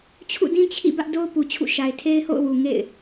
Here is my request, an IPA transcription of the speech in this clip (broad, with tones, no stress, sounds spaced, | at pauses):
t͡ɕʰ ṵ˦˨ d ĩ˦ t͡ɕʰ ḭ˦˨ b ä˦ ʔ d o˦ ʊ̯ p u˨ t͡ɕʰ ṵ˦˨ ʃ a˨ ɪ̯ tʰ e˦ ɪ̯ h o̰˦˨ ʊ̯ w u˨ ŋ ḛ˦˨ ɪ̯